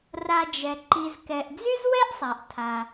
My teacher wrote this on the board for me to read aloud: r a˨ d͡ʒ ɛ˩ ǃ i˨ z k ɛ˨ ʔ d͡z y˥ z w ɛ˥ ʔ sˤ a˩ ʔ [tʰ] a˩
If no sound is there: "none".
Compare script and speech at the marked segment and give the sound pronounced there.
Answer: tʰ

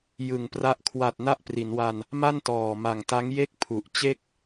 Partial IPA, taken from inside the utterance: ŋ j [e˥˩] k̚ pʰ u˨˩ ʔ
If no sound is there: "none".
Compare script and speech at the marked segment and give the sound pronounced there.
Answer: e˥˩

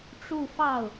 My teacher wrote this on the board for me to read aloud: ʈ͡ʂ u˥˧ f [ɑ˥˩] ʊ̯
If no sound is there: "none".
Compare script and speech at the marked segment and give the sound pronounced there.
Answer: ɑ˥˩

